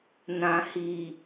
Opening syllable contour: low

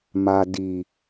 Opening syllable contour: low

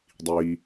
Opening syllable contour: low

